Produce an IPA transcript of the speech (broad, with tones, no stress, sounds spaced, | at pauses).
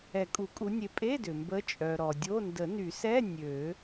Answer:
ɛ˨˩˦ kʼ u˨˩˦ kʼ u˨˦ nʲ e˨˦ pʼ e˧˥˧ d ʏ˩ m b ə˨˦ t͡ʃʼ œ˩ ɾ ɔ˩ dʲ o˧˥˧ n d ə˨˩˦ n y˨˩˦ s ɛ˧˥˧ nʲ ø˨˩˦